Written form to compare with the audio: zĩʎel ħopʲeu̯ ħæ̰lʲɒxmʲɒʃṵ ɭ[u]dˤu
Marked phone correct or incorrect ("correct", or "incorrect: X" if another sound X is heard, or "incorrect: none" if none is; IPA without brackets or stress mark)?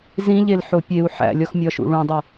incorrect: ũ